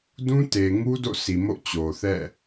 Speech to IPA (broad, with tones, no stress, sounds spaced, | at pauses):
d ũ˦ t e˨ ŋ u˦ d o̰˦˨ sʰ i˨ m o̰˦˨ t͡ɕ o˨ θ ɛ̰˦˨